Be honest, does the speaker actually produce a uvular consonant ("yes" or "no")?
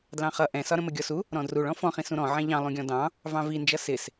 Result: yes